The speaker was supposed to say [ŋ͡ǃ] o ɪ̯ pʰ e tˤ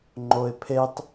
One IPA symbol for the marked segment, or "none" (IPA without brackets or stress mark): ŋ͡ǃ